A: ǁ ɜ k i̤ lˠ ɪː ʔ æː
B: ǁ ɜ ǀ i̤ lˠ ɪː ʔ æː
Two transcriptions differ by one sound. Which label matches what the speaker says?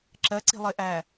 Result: B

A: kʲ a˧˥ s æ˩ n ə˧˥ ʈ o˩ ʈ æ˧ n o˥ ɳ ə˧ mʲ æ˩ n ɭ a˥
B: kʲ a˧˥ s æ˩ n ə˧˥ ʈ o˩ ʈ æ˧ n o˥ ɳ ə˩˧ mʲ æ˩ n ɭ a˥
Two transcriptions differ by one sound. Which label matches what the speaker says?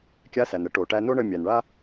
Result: A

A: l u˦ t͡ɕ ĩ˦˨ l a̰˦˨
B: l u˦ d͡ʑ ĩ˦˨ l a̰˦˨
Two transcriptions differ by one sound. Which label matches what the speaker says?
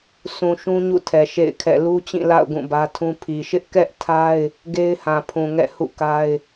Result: A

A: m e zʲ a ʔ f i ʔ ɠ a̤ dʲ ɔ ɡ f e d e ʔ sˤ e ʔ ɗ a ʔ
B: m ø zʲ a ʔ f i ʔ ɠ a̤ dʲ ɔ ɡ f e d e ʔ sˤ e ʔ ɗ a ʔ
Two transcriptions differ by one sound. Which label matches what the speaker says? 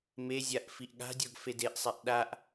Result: A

